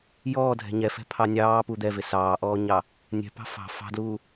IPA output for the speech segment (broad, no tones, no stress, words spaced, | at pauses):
jɔːdʱɛ̤ ɲɛfɛ̤ pʰɑnʲɑː pud̪ɛvɪ sɑːʔɔːɲɑ | nʲɛ̤pɑ̤ fɑ̤ fɑ̤dluː